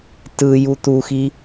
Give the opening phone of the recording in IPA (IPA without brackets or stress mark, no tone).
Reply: t